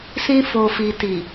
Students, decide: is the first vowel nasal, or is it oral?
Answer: nasal